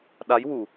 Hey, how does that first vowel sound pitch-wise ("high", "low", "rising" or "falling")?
rising